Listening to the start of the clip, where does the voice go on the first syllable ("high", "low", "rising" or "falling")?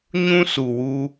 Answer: high